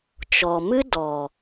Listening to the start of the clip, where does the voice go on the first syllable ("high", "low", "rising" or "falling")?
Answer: low